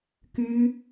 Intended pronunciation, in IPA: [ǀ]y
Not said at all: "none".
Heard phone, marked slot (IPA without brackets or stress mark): k